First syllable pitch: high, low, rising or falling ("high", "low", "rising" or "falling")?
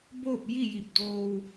falling